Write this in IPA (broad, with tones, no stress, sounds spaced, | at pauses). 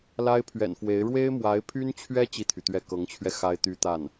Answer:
l a˥ ɪ̯ pʰ ɥ ɛ̰˨˩ n f w e˧˥ ɪ̯ ɻ w e˥ ɪ̯ m w a˧˥ ɪ̯ pʰ y˥ n t͡ɕʰ ɥ ɛ˥ t͡ɕ i˥˩ t̪ʰ y˩ t̪ ɥ ɛ˥˩ k ɤ˧˥ ŋ t͡ɕʰ ɥ ɛ˧ x a˥ ɪ̯ t̪ y˥ t̪ a˥˩ n